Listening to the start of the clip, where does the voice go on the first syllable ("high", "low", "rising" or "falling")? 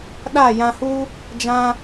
falling